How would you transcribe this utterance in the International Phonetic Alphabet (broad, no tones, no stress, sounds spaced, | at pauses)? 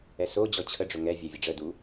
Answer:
ɛ s o d͡ʑ ɔ t͡ɕʰ ə ɖ͡ʐ ʊ ŋ ɛ vʲ ɛ vʲ ə ɖ͡ʐ ə d u